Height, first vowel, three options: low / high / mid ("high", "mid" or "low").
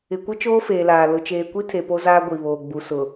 high